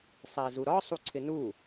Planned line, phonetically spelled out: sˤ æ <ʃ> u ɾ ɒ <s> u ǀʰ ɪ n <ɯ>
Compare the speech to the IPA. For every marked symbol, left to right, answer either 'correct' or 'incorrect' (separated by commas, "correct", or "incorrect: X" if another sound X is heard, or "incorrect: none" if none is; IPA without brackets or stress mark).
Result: incorrect: z, incorrect: sˤ, incorrect: u